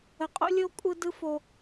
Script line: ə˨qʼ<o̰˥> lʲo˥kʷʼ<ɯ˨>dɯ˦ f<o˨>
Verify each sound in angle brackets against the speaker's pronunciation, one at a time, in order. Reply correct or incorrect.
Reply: correct, incorrect, correct

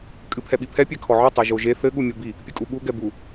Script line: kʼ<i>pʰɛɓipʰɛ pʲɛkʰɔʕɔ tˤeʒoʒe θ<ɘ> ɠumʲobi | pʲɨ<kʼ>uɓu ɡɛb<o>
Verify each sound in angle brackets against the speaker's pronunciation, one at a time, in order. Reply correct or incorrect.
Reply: incorrect, correct, correct, incorrect

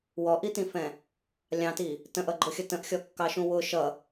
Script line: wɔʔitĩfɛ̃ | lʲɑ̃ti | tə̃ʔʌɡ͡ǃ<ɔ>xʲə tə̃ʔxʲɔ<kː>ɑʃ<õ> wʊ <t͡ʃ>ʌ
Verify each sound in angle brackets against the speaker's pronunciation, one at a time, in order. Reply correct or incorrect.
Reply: incorrect, correct, incorrect, incorrect

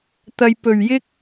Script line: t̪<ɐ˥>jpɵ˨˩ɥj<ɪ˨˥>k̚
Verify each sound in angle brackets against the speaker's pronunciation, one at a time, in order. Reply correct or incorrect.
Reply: incorrect, incorrect

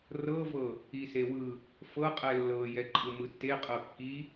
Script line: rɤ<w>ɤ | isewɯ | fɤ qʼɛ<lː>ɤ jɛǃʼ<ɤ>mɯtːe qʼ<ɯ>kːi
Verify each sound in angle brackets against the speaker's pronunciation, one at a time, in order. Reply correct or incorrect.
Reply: incorrect, correct, incorrect, incorrect

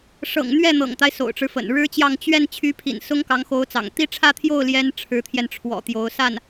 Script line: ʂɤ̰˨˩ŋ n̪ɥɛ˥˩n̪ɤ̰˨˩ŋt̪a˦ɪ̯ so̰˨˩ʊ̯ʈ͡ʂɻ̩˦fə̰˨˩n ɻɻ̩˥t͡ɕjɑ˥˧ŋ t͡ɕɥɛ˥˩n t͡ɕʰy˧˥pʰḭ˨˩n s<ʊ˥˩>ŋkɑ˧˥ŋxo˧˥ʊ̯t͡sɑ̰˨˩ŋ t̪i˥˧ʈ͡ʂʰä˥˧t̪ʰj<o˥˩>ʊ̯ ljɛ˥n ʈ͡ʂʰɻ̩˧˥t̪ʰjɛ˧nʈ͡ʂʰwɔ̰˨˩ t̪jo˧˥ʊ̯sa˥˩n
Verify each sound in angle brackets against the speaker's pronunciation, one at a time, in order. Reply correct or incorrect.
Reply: incorrect, correct

